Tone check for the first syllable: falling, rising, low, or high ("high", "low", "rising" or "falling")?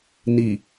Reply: low